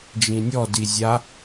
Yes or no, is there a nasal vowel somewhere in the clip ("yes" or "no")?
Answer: yes